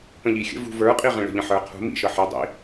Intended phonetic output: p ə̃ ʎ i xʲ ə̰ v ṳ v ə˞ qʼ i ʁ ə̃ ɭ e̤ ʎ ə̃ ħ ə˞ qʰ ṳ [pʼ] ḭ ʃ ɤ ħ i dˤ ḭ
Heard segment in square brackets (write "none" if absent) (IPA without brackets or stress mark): m